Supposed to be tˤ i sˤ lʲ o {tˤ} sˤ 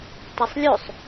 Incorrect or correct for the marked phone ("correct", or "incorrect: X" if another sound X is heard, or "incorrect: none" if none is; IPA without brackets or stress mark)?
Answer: incorrect: none